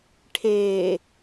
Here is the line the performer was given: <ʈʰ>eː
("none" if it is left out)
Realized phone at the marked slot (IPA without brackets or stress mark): ʈʰ